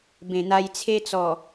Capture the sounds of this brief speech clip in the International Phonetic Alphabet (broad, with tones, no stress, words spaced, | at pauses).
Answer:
bẽ˨˩n̪a˧jt͡sʰe˦t͡sɔ˨˩